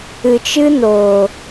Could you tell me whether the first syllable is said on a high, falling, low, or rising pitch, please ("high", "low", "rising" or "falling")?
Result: low